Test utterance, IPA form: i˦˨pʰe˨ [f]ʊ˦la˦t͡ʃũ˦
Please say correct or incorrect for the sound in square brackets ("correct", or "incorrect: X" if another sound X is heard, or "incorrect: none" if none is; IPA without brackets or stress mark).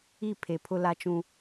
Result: incorrect: pʰ